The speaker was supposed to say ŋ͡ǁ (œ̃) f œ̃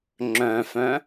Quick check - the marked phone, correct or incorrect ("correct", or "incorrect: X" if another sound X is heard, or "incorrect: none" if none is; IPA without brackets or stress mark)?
correct